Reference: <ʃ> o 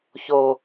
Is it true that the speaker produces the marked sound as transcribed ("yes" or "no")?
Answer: no